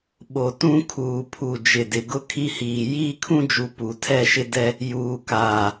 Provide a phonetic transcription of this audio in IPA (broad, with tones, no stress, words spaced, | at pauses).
ɓo˨ tũ˦kʰuː˨ pʰu˨d͡ʒɪ˨dɪ˨ ɡʊ˦kʰi˦hiː˨ jiː˦kʰũ˦d͡ʒu˨ pu˨tʰɛ˦˨ʃɪ˦ dɛ˦ | juː˨kaː˨